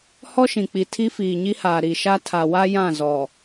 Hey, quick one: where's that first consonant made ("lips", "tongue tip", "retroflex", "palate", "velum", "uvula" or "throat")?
throat